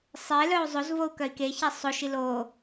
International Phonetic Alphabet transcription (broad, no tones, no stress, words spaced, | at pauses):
sˤe lœu̯zˤozvou̯ kœi̯keçɛ sˤoʃi lo